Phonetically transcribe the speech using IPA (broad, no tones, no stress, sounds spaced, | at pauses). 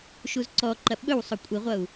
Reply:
ʃ u z ǀ ɔ ǃ ɐ ɓ ɵ w sˤ o kʷʼ i ʁʷ ʌ u̯